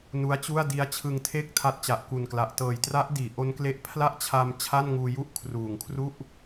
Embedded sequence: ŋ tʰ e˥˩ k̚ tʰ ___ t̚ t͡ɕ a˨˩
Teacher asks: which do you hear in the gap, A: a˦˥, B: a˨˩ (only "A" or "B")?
A